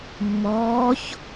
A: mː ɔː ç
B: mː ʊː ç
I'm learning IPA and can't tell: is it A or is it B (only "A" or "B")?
A